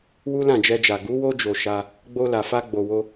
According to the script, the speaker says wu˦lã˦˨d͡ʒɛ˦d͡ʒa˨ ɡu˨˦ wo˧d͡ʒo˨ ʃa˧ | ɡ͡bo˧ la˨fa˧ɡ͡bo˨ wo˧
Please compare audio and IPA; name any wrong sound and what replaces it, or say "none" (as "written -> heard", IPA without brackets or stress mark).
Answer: ɛ˦ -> ɛ˧